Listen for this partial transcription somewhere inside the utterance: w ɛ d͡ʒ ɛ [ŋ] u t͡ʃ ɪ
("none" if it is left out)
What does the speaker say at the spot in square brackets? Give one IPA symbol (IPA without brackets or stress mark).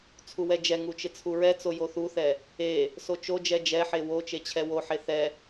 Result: ŋ